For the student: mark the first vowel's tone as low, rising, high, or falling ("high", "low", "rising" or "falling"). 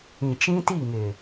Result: low